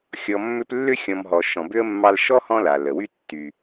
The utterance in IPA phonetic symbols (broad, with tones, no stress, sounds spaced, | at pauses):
xʲ ɔ˨ mː ʏ˦ p lː ʏ˥ xʲ ɔ̃˨ m ɦ ɔ˩ ʃ ɔ̃˨ b ʏ˥ ə̯ mː ɑ˦ l ʃ ɔ˥ h ɔ̃˦ l a˩ l ə˩ w y˥ tː y˨